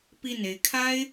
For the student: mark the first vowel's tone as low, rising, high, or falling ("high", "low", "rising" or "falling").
falling